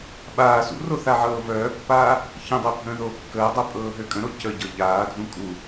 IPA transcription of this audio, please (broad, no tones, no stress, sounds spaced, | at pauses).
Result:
ɓ aː s ṵ r o θ a ʕ ɤː v œː pː aː | ç ə̃ dˤ ɛ bʱ ə̃ː ð oː kː əː dˤ o pʼ ɤː ɦ ø kʼ ə̃ ɾ o c ə ɟ ɤ ʎ aː dʱ ũ kʼ u